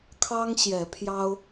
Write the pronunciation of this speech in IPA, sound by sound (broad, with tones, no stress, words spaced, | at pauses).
kʰɑ˦ŋ ɕjɛ˨˦pʰjɑ˦ʊ̯